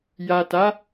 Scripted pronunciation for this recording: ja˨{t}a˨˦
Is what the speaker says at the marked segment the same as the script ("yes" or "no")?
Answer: yes